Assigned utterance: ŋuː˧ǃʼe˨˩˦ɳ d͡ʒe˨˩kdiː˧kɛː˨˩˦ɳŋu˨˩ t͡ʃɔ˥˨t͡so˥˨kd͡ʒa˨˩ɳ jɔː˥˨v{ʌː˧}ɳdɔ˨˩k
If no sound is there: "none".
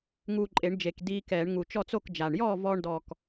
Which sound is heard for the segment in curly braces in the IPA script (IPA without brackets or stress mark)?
ɔː˧